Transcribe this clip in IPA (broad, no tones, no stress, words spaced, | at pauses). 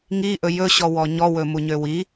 ŋiʔɵ jɵɕɔwɔ ɲɔwɵmuɲø wi